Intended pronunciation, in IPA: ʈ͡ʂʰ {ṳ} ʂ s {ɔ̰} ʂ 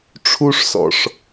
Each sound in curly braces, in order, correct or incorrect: incorrect: u, correct

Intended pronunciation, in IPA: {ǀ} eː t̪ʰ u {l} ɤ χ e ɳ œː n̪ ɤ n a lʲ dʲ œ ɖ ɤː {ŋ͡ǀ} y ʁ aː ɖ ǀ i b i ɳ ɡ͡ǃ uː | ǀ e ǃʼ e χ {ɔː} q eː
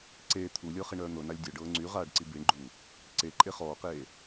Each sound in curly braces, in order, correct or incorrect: correct, incorrect: lʲ, correct, correct

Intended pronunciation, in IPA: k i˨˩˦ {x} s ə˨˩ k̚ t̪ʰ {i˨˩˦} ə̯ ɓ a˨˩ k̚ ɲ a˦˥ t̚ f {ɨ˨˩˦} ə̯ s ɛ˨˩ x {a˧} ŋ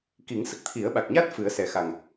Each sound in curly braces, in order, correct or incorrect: incorrect: ŋ, correct, correct, incorrect: a˨˩

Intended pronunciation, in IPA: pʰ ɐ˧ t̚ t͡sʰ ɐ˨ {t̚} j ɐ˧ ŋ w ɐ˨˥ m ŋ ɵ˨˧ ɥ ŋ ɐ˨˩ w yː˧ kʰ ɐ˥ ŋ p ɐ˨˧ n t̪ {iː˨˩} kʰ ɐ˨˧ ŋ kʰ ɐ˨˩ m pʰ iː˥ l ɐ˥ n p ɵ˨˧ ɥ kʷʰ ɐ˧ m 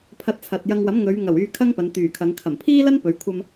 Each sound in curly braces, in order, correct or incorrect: correct, incorrect: yː˨˩

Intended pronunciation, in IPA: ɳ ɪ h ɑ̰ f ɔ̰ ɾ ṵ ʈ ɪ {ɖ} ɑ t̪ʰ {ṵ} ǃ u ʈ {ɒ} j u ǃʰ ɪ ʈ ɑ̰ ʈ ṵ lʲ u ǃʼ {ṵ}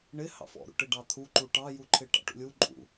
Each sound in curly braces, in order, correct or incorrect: correct, incorrect: u, incorrect: ɑ, correct

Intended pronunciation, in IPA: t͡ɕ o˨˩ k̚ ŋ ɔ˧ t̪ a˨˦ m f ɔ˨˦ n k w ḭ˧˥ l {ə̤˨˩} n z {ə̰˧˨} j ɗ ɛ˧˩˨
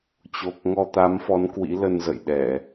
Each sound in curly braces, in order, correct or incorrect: incorrect: ə˧, correct

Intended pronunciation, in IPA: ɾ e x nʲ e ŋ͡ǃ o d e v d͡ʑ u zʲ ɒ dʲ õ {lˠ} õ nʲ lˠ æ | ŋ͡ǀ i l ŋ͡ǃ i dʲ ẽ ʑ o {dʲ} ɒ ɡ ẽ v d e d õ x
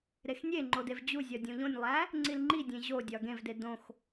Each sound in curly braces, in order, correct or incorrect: incorrect: ʎ, correct

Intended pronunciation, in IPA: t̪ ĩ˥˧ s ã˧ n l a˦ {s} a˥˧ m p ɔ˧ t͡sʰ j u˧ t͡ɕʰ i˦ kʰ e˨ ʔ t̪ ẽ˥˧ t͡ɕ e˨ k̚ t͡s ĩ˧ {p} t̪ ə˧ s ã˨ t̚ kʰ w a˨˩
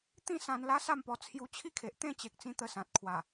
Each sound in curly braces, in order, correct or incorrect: correct, incorrect: none

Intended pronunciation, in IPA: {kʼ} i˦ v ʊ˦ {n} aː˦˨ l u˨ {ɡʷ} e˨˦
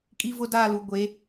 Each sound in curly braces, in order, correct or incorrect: correct, incorrect: d, correct

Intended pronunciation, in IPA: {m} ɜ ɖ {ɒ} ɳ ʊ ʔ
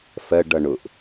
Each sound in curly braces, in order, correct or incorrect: incorrect: f, incorrect: ʌ

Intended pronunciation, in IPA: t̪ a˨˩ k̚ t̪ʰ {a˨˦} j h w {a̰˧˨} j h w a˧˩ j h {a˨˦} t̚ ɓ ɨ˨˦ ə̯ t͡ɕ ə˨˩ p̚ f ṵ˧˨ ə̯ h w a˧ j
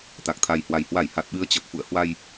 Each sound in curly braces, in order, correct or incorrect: incorrect: a˨˩, incorrect: a˨˩, incorrect: a˨˩

